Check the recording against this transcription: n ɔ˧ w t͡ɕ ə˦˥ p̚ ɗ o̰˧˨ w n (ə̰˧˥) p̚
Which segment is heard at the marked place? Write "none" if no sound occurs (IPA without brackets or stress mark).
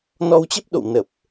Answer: ə˨˩